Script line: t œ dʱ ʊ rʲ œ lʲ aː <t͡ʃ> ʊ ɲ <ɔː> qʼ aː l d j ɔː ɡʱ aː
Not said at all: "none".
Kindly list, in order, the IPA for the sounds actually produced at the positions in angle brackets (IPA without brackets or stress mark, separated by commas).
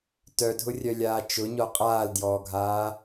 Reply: t͡ʃ, ɔ